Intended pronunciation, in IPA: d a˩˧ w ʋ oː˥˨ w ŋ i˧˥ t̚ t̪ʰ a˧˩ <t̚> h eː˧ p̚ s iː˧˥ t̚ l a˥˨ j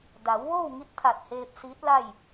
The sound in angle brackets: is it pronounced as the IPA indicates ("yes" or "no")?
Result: yes